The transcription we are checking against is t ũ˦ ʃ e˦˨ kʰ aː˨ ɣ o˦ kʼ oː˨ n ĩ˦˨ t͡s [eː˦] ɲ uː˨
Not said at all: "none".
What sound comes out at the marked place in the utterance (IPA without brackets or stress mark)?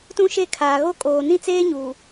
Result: eː˦